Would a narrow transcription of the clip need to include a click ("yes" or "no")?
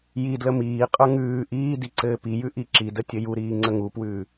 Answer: yes